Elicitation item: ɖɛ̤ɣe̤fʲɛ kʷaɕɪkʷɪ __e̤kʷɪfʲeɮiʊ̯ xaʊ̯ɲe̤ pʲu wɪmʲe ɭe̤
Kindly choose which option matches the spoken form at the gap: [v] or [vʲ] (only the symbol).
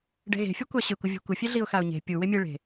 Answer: vʲ